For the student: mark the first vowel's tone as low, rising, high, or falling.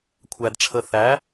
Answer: high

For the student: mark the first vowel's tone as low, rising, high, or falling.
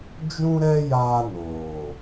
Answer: high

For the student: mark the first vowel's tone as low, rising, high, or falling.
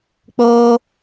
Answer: high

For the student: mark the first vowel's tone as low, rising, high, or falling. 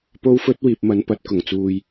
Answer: high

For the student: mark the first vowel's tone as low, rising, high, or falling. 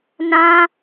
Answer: high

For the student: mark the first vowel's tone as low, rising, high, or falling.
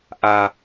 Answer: low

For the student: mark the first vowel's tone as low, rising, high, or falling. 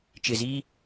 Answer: low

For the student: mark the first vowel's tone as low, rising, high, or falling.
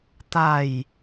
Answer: falling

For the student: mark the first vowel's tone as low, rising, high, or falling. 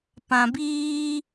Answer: low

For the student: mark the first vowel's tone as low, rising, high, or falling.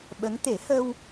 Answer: rising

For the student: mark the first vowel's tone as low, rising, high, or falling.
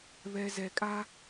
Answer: low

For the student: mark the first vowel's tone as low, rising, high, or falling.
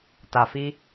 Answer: low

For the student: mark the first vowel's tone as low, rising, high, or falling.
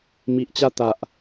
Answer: low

